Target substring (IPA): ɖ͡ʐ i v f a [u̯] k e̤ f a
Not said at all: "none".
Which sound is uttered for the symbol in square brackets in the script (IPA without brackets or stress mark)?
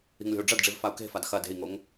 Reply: u̯